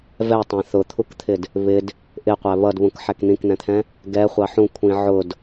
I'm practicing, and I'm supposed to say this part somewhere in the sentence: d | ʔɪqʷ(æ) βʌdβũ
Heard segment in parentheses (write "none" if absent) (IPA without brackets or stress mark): æ